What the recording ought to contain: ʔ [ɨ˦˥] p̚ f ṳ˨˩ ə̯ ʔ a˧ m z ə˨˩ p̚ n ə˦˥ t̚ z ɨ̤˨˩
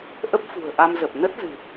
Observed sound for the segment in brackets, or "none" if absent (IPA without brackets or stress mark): ə˦˥